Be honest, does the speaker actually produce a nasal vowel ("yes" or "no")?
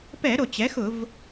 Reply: no